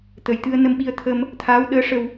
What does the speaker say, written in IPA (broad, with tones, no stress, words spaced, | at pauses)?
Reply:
t̪ə˨˩j t̪ɨ˧ə̯nə˧mɓi˧ə̯t̪ʰə˧m | t̪ʰaː˧˥wɗəː˧˥ʂə˧w